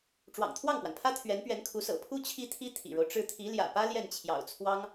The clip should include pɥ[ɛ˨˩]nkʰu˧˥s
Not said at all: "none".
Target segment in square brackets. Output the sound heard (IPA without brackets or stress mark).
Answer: ɛ˧˥